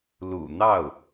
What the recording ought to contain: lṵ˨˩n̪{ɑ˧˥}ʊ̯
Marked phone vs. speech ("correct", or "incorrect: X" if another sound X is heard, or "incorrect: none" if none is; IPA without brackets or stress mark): incorrect: ɑ˥˩